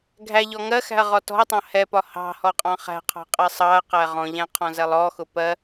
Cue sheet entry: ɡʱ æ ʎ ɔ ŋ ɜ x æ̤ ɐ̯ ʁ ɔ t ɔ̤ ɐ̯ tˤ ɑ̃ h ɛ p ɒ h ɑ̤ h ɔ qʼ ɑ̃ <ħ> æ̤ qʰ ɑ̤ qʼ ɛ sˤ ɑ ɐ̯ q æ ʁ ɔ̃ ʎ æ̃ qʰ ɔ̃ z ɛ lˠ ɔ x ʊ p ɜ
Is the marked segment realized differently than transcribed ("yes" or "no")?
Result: yes